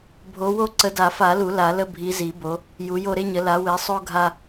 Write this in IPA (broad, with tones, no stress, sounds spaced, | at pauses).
bʱ o˨˦ w o˦ ǀ ə˨˦ d a˨˩˦ f a˨˩˦ l u˨˩˦ l a˨˩˦ l ə˦ bʱ i˨˦ z i˨˩˦ b o˨˦ | j u˨˦ j o˦ ɾ e˦ ɲ ə˨˦ l a˨˦ w e˨˦ sˤ o˦ ɡʱ a˦